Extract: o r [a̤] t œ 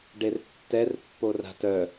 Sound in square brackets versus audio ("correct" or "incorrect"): correct